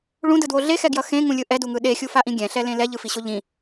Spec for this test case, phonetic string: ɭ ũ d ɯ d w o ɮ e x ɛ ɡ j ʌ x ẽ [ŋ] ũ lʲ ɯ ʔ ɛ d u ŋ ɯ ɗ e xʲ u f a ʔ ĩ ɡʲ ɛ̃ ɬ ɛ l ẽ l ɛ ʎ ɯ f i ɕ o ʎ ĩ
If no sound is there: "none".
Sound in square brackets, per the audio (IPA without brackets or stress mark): ŋ